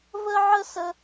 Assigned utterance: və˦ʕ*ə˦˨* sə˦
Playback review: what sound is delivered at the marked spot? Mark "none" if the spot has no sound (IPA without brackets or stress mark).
ə˦